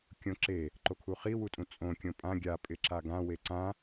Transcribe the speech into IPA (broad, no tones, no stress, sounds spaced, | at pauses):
kʲ õ ǁ e | ǃ o kʰ u χ i w u tʼ ũ t͡sʼ õ kʲ õ pʼ ã ɡʲ a pʼ ɪ ǁ a ɡ ã w e ǀ ã